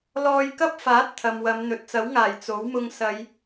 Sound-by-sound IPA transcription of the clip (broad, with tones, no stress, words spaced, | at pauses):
lɔː˧jkɐ˥p̚faː˨˥t̚ t̪ʰɐ˨mwɐ˨˧m n̪ɵ˨t̚t͡sɐ˨˥wŋaː˨˩j t͡so˨˥wmʊ˧ŋsɐ˨˧j